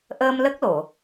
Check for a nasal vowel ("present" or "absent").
absent